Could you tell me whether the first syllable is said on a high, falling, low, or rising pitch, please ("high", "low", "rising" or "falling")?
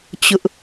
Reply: high